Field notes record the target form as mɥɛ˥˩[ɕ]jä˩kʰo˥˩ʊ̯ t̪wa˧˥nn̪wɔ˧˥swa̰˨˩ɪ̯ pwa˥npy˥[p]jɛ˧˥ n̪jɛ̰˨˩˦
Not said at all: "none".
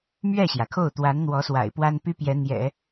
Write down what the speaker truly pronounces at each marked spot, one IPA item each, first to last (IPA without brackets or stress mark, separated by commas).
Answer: ɕ, p